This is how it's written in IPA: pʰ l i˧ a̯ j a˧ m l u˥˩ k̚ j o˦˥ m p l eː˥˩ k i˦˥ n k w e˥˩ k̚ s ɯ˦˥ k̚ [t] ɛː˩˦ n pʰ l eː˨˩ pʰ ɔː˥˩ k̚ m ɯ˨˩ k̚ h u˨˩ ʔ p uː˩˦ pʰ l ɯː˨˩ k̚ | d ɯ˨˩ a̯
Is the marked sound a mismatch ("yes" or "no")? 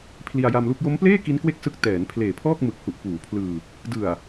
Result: no